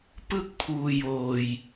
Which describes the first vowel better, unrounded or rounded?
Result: unrounded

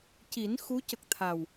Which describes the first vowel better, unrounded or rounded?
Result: unrounded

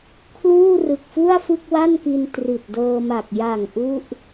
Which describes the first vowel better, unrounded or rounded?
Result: rounded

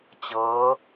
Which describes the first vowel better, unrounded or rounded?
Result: unrounded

